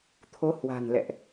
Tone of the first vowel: rising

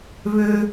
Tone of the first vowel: high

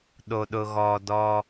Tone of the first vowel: low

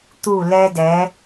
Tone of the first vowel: falling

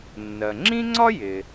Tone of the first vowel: low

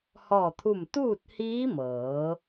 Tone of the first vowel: falling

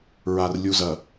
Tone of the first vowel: low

